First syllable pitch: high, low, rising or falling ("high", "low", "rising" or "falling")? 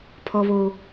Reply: high